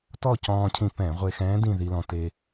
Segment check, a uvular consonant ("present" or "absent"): present